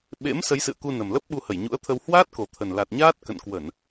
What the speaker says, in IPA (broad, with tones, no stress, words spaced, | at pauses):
ɓḛ˧˥m sə˨˦jsɨ̰˧˨ə̯ku˧ nə˨˩mlə˦˥p̚ ɓu˧hə˧˩jɲṵ˧˥ə̯t̪ʰə˧w hwaː˦˥t̚ko˨˩t̪ʰə˨˩n la˨˩t̚ɲaː˦˥t̚ kə̰˧˨nkwə˧˩˨n